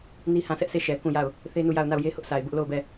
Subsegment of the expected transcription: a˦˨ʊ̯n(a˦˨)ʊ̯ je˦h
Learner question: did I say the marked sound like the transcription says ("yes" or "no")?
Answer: yes